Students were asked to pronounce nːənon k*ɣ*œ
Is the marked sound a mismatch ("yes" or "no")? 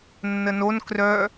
yes